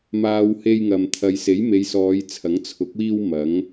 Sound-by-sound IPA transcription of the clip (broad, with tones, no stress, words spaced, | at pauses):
maː˨w he˧jŋɐ˨m t̪ʰɐ˨jse˨˥j me˨˧jsɔː˨˧jt͡sʰɐ˨˥ŋ t͡sʰʊ˨˥k̚wiː˧w mɐ˨˥ŋ